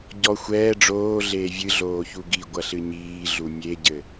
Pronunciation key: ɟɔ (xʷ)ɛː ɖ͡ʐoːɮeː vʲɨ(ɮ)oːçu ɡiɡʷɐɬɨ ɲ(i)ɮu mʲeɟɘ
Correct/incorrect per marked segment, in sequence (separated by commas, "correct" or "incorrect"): correct, correct, incorrect